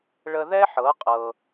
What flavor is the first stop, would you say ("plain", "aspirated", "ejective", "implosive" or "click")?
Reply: ejective